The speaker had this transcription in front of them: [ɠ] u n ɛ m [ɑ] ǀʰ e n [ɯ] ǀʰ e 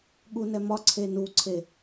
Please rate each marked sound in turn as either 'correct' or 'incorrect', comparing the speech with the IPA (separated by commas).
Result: correct, incorrect, incorrect